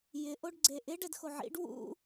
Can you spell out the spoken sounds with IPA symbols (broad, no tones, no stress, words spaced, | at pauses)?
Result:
jɪ ʔoɖɡ͡ǀeʔɪɖ ɛdxoʕḭɖ wṵ